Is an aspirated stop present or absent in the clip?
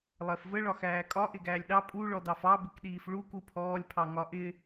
present